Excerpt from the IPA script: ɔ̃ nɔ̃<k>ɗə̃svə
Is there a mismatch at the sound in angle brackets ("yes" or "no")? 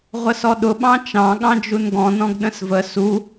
yes